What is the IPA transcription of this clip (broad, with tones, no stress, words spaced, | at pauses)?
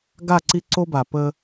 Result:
ɡa˦˨ǀi˦ǀo˦ ba˨pə˦